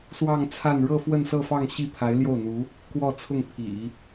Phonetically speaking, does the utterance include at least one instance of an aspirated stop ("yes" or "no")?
yes